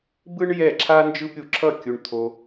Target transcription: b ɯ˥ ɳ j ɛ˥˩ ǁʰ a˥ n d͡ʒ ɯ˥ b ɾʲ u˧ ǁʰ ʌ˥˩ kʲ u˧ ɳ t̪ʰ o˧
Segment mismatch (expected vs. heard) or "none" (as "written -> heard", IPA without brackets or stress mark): none